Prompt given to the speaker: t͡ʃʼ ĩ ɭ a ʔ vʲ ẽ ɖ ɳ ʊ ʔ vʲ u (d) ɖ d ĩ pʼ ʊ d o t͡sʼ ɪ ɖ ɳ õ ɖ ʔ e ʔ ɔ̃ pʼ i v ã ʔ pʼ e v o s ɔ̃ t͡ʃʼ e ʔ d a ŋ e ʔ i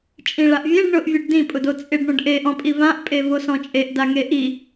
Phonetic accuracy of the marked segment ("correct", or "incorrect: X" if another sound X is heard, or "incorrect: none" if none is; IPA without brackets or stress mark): incorrect: none